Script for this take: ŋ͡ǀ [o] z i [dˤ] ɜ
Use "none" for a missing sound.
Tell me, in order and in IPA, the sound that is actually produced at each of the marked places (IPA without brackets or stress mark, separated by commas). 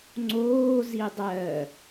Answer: oː, dˤ